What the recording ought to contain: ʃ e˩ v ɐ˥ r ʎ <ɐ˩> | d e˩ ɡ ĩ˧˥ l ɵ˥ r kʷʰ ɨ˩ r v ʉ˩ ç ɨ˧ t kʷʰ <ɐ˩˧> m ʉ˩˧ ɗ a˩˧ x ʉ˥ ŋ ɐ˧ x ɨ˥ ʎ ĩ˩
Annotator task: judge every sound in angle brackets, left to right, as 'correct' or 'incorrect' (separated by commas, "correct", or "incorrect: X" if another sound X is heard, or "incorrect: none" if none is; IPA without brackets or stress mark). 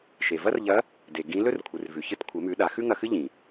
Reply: incorrect: ɐ˧˥, correct